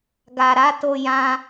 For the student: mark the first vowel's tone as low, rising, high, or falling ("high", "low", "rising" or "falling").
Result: low